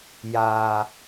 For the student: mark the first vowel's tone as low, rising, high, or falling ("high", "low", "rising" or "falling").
low